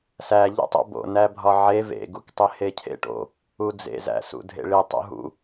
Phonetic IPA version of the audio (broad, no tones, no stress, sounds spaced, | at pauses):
s æ ʎ ṵ tˤ o̰ b o̰ n æ bʱ ɒ ʕ e v ḛ ɡ u k tˤ e h e cʰ ḛ ʈ o̰ | u d͡z ḛ z æ̰ s ṵ dʱ ḛ ɭ i tˤ ṵ ɦ ṵ